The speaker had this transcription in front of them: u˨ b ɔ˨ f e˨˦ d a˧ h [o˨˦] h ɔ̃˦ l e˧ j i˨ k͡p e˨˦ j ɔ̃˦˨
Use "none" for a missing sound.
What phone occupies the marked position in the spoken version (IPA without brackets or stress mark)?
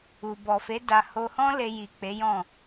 o˧